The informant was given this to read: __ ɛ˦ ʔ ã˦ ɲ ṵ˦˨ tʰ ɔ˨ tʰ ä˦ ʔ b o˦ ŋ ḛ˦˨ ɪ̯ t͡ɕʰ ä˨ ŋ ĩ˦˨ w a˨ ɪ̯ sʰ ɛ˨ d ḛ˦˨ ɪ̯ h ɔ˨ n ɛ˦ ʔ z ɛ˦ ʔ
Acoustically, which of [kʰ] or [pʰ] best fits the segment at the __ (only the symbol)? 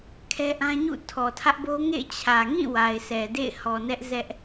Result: kʰ